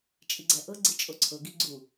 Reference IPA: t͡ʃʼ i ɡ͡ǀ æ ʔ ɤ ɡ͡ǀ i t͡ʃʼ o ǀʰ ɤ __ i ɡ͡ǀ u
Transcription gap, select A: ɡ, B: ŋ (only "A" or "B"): A